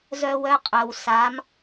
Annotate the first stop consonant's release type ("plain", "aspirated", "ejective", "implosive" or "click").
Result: ejective